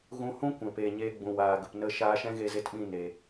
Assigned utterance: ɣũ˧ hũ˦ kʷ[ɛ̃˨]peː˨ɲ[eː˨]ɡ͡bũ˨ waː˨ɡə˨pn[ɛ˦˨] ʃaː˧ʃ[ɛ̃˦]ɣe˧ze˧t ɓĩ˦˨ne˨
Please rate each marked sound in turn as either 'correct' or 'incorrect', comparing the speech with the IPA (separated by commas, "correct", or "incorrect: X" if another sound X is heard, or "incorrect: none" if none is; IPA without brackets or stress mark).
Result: correct, incorrect: eː˧, incorrect: ə˦˨, correct